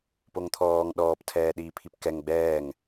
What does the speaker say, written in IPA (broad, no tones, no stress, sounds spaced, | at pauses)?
p o ŋ t̪ʰ ɔː ŋ ɗ ɔː p tʰ ɛː ɗ iː pʰ i p k ɛ ŋ ɡ͡b ɛː ŋ